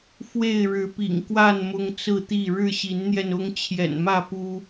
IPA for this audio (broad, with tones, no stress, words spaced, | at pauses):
fwe˥˨ɪ̯ɻɻ̩˨˦pḭ˨˩ŋkwa˥˨n mʊ˦ŋt͡sɹ̩˥˨t̪i˥˨ ɻɻ̩˥˨ɕi˨˦nn̪jɛ˧nʊ˦ŋ t͡ɕʰjɛ̰˨˩nmä˥˨pu˦